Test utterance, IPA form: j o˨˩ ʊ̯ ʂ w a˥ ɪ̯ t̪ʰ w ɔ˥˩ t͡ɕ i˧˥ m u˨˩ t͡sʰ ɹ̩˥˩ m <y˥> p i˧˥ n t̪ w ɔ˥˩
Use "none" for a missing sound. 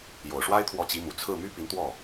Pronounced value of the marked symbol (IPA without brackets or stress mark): y˥